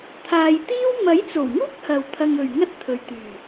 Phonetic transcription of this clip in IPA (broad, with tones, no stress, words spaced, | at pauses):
t̪ʰaː˨jt̪iː˥w mɐ˨˥jt͡so˨˩wŋuː˥k̚ hɐ˨w t̪ʰɐ˧ŋɵ˨ɥŋɐ˥t̚t̪ʰɵ˨ɥ t̪yː˨˩